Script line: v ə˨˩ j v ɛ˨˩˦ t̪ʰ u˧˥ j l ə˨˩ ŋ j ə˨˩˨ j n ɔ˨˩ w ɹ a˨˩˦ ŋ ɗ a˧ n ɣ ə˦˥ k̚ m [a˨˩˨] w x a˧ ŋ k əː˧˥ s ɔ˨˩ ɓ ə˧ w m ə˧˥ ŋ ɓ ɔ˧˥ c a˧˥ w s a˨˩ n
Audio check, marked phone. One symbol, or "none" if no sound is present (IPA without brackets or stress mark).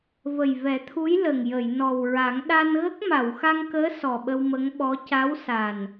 a˨˩˨